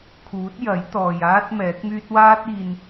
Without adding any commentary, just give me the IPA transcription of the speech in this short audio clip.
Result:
kʰ uː˨˥ t̚ j ɐ˨˥ j t̪ ɔː˨ j aː˥ t̚ m ɛː˨˥ k̚ m yː˥ t̚ w aː˥ t̚ iː˧ n

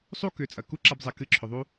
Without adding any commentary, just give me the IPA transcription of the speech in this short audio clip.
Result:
sˤ u˦ k ʏ˨˦ t͡sʼ ɐ˨ k u˦ ǁ a˧ b zˤ ɛ˨ k ɨ˧ ǁʰ ʏ˨ ðˤ u˦

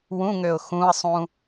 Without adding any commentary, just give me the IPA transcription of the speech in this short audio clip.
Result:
w ũ ŋ ø ʊ̯ x ũ ə̯ sˤ ũ

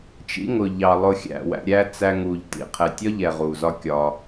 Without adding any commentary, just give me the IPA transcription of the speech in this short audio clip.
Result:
t͡ʃ ḭ˦ ŋ ʊ˨ ʎ ɑ˨ lˠ ʊ˧ xʲ æ̰˦˨ w æ̰˧ ɾʲ æ˦ t͡s æ˧ ŋ u˨ ʎ t ḭ˦˨ qʰ ɛ˨ tʲ ɒ˦ ʎ ɛ˨ ʁ u˨ z ɒ˦ kʲ ɒ˧

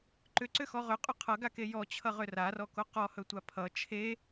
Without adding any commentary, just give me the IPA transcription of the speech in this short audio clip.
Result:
ǃ ʏ ǀ ʏ x ɔ ʁ ʏ qʼ ɵ qʰ ʌ ɡ a k e j ɔ t͡ɕʰ ʌ ʁ ʏ r a r ɔ k o q ɔ h ɵ tʷ a pʰ ʌ t͡ʃʰ e

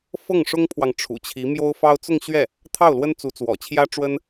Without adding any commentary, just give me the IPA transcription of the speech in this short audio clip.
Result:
f ɤ˥˩ ŋ ʂ ʊ˥ ŋ pʰ w ɑ˨ ŋ ʈ͡ʂʰ ṵ˨˩ t͡ɕʰ i˧˥ m j o˥ ʊ̯ f ɑ˥ ʊ̯ t͡s ʊ˥˧ ŋ ɕ ɥ ɛ˥˩ | t̪ʰ ɑ˥˩ ʊ̯ l w ə˥ n t͡s u˧˥ t͡s w ɔ̰˨˩ t͡ɕʰ j ä˥ ʈ͡ʂ w ə˥ n

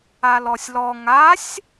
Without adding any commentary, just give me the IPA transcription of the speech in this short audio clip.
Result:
a l ɔ sʲ l ɔ ŋ a sʲ

